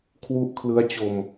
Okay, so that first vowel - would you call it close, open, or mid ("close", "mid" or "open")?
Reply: close